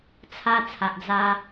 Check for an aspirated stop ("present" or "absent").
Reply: present